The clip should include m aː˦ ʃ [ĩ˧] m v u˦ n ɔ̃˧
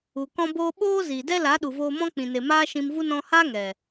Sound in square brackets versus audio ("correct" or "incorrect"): correct